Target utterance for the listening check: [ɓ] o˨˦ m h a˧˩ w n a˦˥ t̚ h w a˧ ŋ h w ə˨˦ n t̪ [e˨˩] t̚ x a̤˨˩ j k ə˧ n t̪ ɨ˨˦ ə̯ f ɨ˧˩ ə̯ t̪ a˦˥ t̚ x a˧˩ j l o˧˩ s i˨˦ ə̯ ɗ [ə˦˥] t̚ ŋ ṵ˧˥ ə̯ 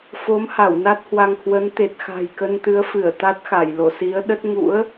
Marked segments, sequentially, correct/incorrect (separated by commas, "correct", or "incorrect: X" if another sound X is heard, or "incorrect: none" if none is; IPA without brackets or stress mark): incorrect: f, correct, correct